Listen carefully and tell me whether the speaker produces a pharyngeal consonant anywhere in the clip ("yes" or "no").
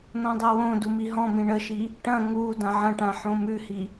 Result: yes